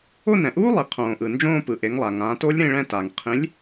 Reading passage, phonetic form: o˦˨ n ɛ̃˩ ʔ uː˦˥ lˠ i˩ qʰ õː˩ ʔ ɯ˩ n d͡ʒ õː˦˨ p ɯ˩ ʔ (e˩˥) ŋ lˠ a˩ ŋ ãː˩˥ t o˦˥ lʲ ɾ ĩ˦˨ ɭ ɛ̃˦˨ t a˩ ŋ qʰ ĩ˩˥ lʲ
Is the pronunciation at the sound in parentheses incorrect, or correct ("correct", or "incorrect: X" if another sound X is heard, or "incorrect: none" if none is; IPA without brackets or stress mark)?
correct